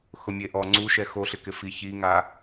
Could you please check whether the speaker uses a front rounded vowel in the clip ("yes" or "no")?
no